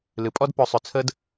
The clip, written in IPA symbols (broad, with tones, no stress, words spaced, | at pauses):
lɨ˨pʼɔ˦d pɵ˨˦sˤʏ˨ t͡sʰə˦d